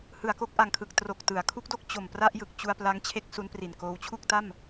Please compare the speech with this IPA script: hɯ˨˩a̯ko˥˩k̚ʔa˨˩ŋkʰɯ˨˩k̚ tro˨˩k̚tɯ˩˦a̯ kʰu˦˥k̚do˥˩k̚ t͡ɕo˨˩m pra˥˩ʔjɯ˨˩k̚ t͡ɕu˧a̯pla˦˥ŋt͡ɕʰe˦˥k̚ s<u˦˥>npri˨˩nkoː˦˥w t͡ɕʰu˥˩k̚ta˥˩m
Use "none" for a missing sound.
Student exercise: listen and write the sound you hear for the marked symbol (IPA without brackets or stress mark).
u˦˥